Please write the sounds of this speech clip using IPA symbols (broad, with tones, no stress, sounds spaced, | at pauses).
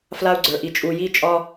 f l a˦ u̯ ɡ͡ǀ ə˞˨ ʔ i˨ t͡ʃʼ u˨ j i˦ t͡ʃʼ ɒ˦